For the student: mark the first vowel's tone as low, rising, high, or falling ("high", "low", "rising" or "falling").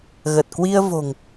low